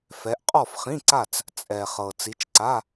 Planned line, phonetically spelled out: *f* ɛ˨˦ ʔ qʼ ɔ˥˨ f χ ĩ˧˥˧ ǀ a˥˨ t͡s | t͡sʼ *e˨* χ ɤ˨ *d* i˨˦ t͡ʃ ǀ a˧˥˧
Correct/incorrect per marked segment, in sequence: correct, incorrect: ɛ˨, incorrect: t͡s

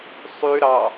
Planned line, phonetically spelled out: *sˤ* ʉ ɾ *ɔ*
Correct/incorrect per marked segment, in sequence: correct, incorrect: ɑ

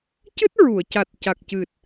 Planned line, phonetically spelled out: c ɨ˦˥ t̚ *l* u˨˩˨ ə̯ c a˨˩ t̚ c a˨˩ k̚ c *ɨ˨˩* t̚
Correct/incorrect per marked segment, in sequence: incorrect: ɹ, correct

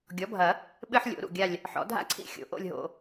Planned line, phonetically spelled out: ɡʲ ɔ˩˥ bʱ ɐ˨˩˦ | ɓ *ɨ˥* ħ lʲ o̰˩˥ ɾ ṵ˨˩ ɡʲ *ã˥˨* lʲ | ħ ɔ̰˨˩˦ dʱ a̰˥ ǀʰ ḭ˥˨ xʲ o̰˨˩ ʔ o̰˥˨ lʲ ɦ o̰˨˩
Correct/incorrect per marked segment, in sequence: correct, incorrect: a˥˨

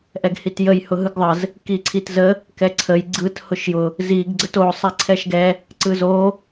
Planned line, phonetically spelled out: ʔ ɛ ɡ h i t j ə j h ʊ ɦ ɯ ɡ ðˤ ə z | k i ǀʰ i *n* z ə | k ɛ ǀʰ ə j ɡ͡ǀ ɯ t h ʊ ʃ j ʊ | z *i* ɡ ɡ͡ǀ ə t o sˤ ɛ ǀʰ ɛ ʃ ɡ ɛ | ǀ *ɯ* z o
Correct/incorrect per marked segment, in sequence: incorrect: t, correct, correct

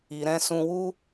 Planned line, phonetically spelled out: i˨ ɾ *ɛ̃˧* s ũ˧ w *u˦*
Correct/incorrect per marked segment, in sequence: correct, correct

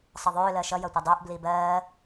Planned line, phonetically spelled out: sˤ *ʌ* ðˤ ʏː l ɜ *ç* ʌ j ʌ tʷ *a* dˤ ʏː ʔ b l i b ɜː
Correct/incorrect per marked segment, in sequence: correct, incorrect: ʃ, incorrect: ʌ

